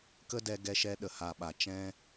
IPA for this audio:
k ə˦ d ɛ˧ ɡ ɛ˧ ʃ ɛ˧ ɗ ə˨ h a˧ ɓ a˨ t͡ʃ ɛ̃˦

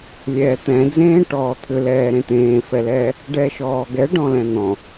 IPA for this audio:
lʲ ɛː t̪ ɛ̃ d͡z ẽː ʈ ɔː t̪ʰ ʏ l ɛː ɾ ẽ t̪ ẽː f ɛ l ɛː | ɖ ɛː ʃ ɔː ɡ ɛ ɖ ɔ̃ l ɛ̃ n̪ ɔ̃

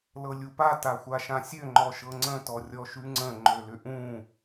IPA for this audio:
l ɤ lʲ u p a t a xʷ a ʃ ã sʲ ø ŋ͡ǃ ɔ ʃ ɤ ŋ͡ǀ ə̃ t ɔ rʲ ɔ ʃ ʉ ŋ͡ǀ ə̃ ŋ͡ǃ ø l ʏ ʔ ũ

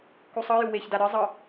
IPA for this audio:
k u sˤ ɤ j u w e ç d a ɾ ɯ zˤ ɤ

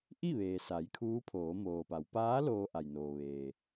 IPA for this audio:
ʔ i˥˨ ʋ eː˩ s a˩˧ j kʰ uː˧˥ pʰ oː˩˧ m oː˩ p a˩˧ w p aː˧˥ l oː˧ ʔ a˩ j n oː˩ ʋ eː˩

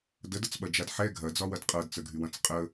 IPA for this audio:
d ə d ə t͡s ɓ ɐ d͡ʒ a d ħ ɛ ɡʱ ɐ d͡z ɒ w ɐ d qʼ ɤ d t͡s ə ɡʱ y w ɐ̃ t͡s qʼ ə

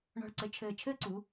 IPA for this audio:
ɳ ɔ̤˧˩ ɭ ǀ ɘ˧ t͡ʃʰ ɘː˧˩ t͡ʃʰ ɘː˥ ǀ u˩˧

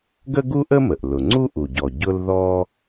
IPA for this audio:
ɡ ə˥ ɡ u˥ ʔ ə˥ m ə˩ ʔ l ʊ˩ ŋ͡ǀ u˥ ʔ u˩ ɟ ɔ˩ ɟ ʊ˥ l ð ɔ˥

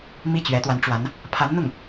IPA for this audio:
m i˥˩ t͡ɕ ɥ ɛ˧˥ t̪ w a˧˥ n ʈ͡ʂ w a˧˥ n | pʰ a˧˥ n n̪ ʊ˥˩ ŋ

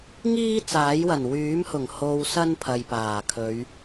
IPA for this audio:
ŋ iː˥ t͡s aː˨˥ j w ɐ˨˩ n w yː˨˥ m h ʊ˨˩ ŋ h o˨ w s ɐ˥ n pʰ ɐ˨ j p aː˨˩ kʰ ɵ˨˧ ɥ

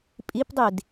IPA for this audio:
pʼ i p dˤ i d

